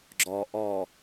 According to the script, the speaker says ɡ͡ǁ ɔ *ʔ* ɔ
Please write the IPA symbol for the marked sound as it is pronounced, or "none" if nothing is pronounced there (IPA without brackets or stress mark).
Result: ʔ